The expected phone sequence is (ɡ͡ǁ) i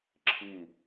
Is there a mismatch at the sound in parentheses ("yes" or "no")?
yes